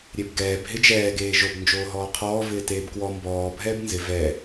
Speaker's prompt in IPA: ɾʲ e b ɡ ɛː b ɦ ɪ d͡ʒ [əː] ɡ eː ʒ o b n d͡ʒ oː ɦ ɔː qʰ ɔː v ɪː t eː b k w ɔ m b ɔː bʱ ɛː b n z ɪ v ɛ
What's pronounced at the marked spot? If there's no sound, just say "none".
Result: ɛː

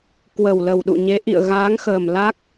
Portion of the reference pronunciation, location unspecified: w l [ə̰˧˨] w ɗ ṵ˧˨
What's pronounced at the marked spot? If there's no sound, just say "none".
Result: ə˨˩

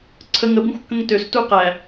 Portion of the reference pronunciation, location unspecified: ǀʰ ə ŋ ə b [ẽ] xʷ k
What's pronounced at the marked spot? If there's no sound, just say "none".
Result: ĩ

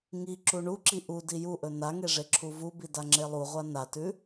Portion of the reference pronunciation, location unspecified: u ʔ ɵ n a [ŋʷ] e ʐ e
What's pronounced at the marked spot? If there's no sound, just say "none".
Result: ŋ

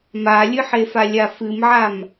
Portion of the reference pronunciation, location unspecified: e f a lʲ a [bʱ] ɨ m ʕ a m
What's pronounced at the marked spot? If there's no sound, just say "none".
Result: f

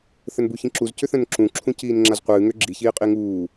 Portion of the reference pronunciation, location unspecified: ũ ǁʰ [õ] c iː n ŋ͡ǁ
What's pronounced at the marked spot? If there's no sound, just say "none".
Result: ũ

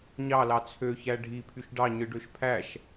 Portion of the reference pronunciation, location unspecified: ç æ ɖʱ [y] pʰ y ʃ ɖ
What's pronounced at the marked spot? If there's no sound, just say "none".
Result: i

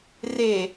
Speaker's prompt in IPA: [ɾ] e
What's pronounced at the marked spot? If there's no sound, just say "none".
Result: r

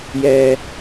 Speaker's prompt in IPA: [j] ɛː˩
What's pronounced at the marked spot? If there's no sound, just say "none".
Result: j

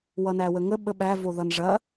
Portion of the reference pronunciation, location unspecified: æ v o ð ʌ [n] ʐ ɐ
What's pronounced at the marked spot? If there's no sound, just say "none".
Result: n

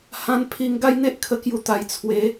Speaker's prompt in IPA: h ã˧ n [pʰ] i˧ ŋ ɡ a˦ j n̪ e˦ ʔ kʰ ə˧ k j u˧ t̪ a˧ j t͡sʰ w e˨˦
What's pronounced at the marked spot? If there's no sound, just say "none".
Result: pʰ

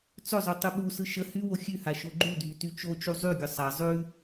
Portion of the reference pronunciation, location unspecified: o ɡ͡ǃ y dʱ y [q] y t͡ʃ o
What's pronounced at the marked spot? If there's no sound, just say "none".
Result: t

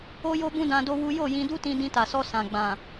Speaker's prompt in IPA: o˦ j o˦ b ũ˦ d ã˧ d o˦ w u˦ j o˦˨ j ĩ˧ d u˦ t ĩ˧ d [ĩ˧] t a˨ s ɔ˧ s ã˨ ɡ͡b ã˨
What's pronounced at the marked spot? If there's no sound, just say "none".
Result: ĩ˧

